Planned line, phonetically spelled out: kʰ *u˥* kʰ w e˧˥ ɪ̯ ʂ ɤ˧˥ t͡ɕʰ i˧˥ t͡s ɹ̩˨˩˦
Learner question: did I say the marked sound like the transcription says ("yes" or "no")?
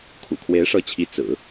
no